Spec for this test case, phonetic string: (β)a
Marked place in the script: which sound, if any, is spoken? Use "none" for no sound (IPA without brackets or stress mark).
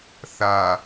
θ